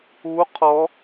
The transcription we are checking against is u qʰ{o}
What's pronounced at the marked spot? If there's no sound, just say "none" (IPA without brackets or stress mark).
ɔ